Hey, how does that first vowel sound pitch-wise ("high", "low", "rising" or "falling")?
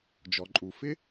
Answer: low